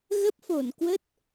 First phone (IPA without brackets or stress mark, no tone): ɣ